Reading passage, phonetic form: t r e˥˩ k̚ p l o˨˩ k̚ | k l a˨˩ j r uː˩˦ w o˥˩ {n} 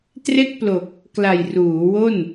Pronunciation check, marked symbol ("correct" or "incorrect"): correct